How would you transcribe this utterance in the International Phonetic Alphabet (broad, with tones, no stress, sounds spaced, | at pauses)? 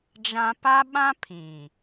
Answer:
d͡ʒ ã˦ p a˦ ɓ ã˦ pʰ ĩ˨